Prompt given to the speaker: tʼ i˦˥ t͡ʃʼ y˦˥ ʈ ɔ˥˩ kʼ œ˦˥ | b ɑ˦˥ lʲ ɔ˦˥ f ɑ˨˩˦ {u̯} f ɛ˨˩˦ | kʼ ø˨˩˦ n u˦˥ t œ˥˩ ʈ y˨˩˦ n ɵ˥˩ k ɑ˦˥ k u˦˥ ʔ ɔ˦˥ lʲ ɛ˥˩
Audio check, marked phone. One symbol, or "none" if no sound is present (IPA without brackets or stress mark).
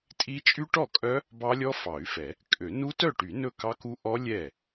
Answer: y̯